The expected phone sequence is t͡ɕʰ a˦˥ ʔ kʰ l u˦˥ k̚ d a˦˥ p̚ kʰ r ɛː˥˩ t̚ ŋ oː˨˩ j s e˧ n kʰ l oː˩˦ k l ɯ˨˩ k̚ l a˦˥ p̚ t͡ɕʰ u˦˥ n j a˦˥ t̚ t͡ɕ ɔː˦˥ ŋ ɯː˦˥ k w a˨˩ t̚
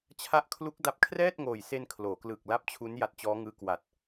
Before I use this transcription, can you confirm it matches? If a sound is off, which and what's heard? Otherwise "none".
none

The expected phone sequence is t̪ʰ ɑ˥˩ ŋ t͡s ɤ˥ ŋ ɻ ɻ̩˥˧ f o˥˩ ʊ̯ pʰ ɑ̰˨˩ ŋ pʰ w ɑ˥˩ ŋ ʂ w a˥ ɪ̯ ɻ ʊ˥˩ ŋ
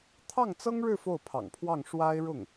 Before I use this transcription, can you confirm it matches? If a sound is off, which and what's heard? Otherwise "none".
none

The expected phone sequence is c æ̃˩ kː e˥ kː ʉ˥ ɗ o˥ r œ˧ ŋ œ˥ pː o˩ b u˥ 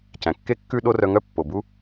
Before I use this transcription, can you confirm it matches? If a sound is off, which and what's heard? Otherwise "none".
none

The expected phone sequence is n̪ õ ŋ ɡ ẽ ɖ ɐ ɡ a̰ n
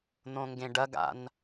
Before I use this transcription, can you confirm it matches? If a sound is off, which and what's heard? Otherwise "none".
none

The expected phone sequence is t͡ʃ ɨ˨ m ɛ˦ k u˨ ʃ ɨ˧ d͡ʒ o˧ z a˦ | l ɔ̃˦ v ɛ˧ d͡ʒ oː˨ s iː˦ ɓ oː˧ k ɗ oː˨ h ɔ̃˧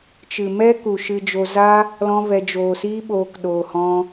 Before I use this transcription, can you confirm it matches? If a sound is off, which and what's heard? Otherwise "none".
none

